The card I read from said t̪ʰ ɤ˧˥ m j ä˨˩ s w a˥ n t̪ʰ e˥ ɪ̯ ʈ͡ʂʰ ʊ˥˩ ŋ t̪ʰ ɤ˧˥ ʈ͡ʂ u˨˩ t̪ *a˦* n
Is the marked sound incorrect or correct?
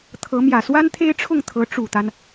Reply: correct